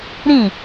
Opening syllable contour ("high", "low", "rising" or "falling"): falling